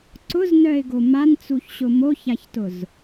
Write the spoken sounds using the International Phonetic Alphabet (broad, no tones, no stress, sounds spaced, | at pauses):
ǀ ʊ z n œ ɪ̯ ɡ o m a n t͡s u ç ɕ ʊ m o ç a ç t ʊ z